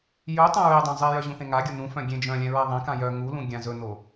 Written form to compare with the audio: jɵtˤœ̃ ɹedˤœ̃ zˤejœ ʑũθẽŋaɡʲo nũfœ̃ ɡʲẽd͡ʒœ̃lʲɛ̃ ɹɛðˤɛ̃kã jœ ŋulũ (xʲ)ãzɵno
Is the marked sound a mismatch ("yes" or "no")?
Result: yes